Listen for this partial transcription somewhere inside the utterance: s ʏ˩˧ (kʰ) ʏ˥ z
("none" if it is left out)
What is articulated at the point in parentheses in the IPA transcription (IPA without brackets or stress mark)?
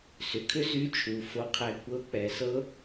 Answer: kʰ